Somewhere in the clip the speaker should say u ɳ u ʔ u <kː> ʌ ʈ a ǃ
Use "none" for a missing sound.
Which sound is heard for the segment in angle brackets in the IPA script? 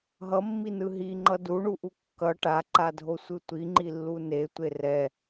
kː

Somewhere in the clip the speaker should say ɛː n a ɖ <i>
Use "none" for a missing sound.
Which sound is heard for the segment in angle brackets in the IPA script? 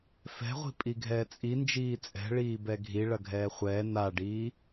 iː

